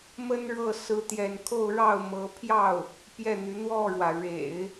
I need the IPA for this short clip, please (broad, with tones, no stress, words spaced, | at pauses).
mə˥nɻɤ˥˩ sɹ̩˥t̪jɛ˥˧n kʰo˥˧ʊ̯ɻɑ˥˩ʊ̯mɤ˧˥ pʰjɑ˥˩ʊ̯ | pjɛ˥˩n̪y˧˥ n̪wɔ˥˩ɻwä˩ ɻḛ˨˩˦ɪ̯